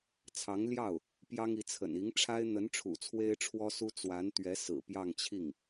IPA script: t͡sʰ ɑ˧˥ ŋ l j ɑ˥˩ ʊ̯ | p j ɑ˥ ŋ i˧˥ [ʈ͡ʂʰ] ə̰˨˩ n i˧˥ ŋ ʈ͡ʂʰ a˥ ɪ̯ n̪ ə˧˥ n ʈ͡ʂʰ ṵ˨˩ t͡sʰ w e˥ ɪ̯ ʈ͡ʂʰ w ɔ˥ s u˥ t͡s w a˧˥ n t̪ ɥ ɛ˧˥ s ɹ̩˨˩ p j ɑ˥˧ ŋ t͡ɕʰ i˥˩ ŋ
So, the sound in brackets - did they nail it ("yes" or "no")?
no